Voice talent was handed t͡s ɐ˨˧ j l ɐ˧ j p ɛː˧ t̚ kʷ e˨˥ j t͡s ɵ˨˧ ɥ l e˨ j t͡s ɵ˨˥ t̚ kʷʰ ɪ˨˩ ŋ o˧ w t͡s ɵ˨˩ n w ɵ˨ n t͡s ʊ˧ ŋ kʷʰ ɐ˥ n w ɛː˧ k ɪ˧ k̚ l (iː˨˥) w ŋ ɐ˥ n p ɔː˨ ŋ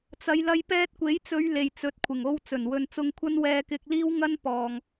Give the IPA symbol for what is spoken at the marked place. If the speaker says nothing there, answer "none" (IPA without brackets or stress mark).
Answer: iː˥